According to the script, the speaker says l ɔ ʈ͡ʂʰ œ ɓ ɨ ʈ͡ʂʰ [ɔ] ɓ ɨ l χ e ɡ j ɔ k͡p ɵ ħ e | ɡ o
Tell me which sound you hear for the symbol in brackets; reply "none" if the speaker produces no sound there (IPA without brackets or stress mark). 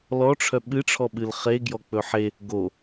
ɔ